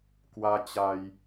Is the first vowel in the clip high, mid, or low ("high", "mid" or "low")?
low